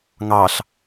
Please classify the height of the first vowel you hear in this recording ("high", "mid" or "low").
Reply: low